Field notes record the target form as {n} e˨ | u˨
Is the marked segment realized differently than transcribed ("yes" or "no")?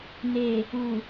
no